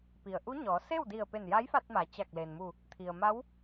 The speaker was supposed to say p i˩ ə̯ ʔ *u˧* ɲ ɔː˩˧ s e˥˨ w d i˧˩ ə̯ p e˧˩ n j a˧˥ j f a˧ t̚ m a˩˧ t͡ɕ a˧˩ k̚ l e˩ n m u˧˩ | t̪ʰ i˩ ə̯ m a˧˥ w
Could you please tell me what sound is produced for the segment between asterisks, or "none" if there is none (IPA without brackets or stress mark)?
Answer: u˧˥